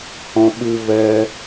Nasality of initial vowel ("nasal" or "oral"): nasal